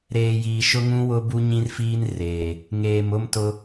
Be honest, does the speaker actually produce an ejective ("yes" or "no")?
no